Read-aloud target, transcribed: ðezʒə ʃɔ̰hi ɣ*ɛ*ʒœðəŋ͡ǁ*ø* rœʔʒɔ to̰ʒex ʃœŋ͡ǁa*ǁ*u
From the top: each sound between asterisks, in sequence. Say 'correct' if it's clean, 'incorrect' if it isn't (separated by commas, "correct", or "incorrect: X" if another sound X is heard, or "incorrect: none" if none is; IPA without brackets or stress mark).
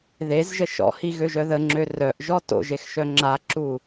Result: incorrect: ø, correct, correct